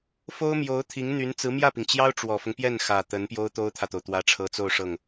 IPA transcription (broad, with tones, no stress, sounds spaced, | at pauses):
f o˥ ʊ̯ m j o˧˥ ʊ̯ t̪ʰ i˧˥ ŋ n̪ y˧˥ n t͡s ɹ̩˧˥ m j ä˥˩ p i˩ ŋ t͡ɕ j ɑ˥ ʊ̯ ʈ͡ʂ w ɔ˨˩ f ʊ˦ ŋ p j ɛ˥˩ n x ä˨˩ t̪ ə˧˥ n p j o˥ ʊ̯ t̪ o˥ ʊ̯ t̪ʰ ä˨ t̪ o˩ ʊ̯ t̪ w ä˧˥ ʈ͡ʂʰ ɤ˧˥ t͡s o˥˧ ʊ̯ ʂ ɤ˥˩ ŋ